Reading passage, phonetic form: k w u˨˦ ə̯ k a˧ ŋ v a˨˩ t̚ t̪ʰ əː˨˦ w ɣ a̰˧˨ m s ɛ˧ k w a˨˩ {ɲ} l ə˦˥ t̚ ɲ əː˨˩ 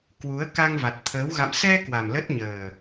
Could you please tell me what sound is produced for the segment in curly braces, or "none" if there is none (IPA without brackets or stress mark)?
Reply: m